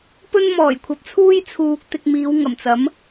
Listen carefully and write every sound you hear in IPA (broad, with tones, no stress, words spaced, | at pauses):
pɵ˥nmɔː˨˩j kʷʰɐ˨p̚t͡sʰuː˥j t͡sʰuː˨k̚ t̪ɪ˧k̚miː˨˧wŋɐ˨˩mt͡sɐ˨˥m